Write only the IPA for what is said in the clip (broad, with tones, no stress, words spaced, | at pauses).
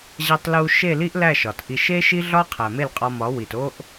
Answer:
ʑæ˧tˤlu˧ ʃe˦˨li˦ʔlæ˦˨ ʃɒ˨tʔi˧ ʃe˦ʃi˦ɮɒ˦ qʰæ˨me˦˨lqʼɒ˧mɒ˨˦ wi˨to˦ʔ